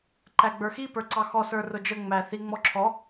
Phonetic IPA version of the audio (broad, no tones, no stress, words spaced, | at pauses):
ǃæɡ͡bə˞xi pə˞ǀɑxɔ sə˞rʊd͡ʒə ŋ͡mæθi ŋ͡mɔǁʰɔ